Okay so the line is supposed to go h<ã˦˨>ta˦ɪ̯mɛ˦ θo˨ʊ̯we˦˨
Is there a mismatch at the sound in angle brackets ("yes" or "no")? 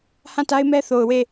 no